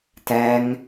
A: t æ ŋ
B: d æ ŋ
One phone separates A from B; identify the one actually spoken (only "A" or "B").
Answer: A